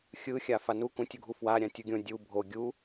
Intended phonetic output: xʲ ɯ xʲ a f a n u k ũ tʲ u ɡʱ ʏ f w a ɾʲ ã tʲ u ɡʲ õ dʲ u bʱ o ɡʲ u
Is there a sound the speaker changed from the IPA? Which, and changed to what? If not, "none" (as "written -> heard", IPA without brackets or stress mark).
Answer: ʏ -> u